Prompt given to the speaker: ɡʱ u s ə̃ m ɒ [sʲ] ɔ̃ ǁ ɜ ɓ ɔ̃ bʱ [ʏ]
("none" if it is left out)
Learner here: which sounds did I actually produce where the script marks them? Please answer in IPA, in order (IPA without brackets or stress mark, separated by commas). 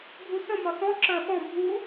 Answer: s, u